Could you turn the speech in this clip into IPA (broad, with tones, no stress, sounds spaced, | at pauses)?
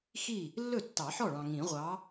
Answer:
x i˥˩ | lː ɵ˥˩ tː ɑ˨˩˦ ħ ɔ˥˩ ɭ ɑ̃˨ ŋ ĩ˨˩˦ ʁʷ ɑ˨˥